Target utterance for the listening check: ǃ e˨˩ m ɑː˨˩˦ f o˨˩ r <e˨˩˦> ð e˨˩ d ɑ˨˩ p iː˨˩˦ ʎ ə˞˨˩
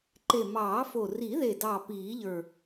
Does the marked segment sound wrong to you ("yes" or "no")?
yes